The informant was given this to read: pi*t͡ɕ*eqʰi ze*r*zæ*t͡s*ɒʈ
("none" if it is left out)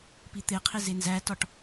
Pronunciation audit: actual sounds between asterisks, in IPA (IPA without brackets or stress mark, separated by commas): t̪, n, t